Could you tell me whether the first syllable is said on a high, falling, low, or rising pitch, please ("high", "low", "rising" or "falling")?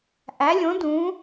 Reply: rising